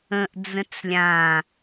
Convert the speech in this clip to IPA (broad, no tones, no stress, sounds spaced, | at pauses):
ə̃ ʔ d͡z ə̃ t͡s lʲ ã